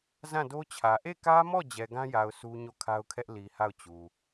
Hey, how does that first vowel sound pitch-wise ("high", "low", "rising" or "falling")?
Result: falling